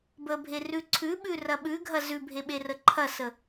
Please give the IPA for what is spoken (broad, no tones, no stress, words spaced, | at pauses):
bəbʱe rʉǀʰʉɓʉ rɐɓʉɡʱɐ zʉbʱe ɓerəǃʰɐsə